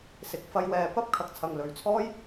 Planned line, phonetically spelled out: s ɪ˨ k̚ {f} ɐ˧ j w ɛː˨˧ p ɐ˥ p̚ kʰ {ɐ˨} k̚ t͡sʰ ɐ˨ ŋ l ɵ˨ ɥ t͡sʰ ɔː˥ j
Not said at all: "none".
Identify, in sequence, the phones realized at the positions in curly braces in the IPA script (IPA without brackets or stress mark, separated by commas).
f, ɐ˨˥